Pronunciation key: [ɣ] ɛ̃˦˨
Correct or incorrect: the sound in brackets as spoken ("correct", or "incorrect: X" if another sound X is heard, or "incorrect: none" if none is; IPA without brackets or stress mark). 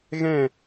correct